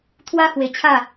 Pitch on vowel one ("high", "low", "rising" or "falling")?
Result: high